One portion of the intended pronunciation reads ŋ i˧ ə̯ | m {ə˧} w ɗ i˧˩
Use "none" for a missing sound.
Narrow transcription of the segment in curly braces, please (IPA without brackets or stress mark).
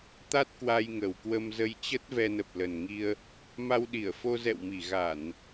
a˧